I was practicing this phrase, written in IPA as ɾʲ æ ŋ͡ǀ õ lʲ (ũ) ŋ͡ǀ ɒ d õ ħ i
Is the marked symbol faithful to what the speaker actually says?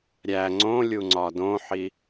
no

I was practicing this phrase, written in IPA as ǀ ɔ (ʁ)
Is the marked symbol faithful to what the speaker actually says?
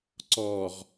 yes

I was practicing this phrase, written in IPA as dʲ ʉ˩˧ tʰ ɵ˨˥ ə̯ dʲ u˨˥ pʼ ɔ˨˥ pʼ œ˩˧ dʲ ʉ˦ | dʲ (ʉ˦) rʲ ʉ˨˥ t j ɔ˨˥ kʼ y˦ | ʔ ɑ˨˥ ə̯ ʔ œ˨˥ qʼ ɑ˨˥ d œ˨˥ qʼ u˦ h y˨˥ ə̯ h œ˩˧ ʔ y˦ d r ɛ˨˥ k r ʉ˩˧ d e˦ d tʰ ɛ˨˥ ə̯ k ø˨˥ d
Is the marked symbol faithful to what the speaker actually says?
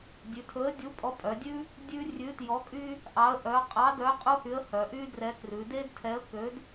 yes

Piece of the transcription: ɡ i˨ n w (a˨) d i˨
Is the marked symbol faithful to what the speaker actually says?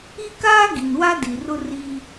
no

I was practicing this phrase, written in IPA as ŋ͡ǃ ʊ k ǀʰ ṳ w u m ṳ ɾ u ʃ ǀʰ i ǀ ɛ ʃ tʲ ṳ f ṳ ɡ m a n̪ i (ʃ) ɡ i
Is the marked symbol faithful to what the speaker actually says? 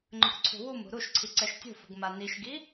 yes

